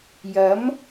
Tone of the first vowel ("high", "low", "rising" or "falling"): rising